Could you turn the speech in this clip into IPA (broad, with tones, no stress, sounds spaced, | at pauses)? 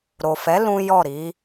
ɾ o˨ f ɛ˨˦ l ũ˦ j ɔ˦˨ ɾ i˨˦